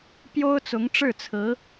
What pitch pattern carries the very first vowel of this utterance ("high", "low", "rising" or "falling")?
high